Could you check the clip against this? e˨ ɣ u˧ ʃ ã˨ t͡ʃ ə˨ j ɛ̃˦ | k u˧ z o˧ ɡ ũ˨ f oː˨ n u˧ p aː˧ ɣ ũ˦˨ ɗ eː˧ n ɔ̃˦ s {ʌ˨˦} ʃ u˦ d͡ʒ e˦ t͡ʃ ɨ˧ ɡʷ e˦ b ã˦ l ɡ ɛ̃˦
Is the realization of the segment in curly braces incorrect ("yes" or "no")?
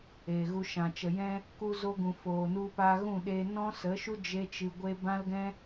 yes